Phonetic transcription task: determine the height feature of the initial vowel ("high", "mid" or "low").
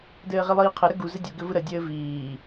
mid